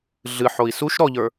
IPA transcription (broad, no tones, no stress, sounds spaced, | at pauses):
ɮ ɨ ħ o i̯ s u ʃ ɾ ɔ ʎ ə˞